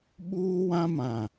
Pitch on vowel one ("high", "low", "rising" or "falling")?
high